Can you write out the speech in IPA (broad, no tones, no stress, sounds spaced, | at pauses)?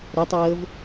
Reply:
ɾ ɛ tˤ ɤː v